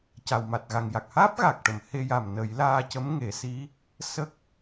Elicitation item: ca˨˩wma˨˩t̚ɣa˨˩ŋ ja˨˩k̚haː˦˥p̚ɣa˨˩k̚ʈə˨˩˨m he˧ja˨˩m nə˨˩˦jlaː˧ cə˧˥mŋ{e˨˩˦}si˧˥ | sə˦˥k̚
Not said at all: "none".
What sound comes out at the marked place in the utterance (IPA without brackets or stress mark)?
e˨˩˦